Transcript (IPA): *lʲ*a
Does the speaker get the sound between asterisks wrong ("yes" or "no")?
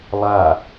yes